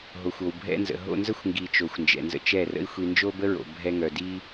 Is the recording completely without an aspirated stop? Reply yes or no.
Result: yes